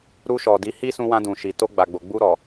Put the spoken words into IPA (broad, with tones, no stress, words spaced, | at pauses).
ɾu˧ʃɔ˨ di˨˦hi˦ sũ˧wã˧dũ˨ʃi˨ to˧ɡ͡ba˨ɡ͡bo˨ ɡ͡bu˧ɾɔ˨